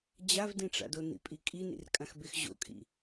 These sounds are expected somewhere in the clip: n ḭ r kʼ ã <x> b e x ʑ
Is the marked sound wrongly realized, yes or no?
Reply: no